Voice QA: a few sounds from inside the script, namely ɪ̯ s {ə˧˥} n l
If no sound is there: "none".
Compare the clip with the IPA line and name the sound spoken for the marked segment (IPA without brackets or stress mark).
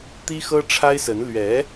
ə˧˥